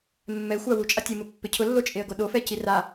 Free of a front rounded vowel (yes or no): yes